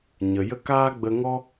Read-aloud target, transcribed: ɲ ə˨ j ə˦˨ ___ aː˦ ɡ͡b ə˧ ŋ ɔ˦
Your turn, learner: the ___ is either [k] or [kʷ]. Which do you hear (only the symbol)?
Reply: k